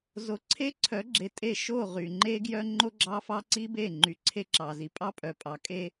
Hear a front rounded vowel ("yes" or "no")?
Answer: yes